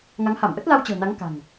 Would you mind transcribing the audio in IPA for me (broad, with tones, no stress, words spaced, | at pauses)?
ŋa˨˦ŋha˧˩mʔə˦˥t̚ la˧wt͡ɕə̤ː˨˩na˨˦ŋ ka̤˨˩ŋ